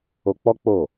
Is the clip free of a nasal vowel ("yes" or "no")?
yes